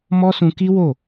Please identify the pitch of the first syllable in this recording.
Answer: high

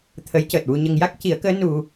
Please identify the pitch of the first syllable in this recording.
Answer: rising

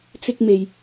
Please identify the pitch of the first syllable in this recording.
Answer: high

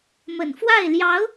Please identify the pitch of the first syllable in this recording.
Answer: low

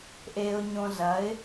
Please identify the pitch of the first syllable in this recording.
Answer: high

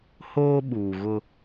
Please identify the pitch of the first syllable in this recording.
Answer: high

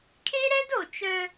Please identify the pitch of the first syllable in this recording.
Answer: high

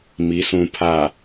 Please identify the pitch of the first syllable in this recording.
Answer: rising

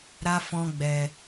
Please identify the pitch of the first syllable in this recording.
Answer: high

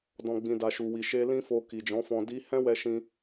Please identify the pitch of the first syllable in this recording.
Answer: low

